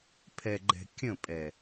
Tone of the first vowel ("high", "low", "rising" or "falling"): low